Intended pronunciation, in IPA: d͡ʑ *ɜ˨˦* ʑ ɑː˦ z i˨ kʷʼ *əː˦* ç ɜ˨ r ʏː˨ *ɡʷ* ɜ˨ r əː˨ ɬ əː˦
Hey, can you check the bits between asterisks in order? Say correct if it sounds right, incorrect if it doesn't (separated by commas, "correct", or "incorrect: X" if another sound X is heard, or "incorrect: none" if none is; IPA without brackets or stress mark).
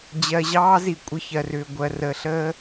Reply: incorrect: ɜ˨, incorrect: ə˦, correct